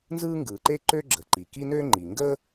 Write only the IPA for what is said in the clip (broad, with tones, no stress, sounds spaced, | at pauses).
n z ɯː˥ ŋ ɡ ɯː˩ ǃ eː˥ ǃ ø˥ ɡ͡ǁ ə˩ ǃ i˩ k i˥ n ø˥ ŋ͡ǃ i˩ ŋ ɡ əː˥